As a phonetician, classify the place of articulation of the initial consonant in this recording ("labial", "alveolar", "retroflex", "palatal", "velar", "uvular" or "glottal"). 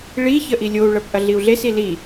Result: retroflex